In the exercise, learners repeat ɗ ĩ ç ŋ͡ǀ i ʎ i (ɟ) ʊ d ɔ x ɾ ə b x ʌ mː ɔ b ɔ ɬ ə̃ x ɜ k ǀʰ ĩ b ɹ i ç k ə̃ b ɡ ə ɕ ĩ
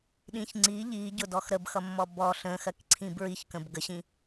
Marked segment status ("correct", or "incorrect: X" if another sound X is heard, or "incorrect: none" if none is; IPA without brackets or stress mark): correct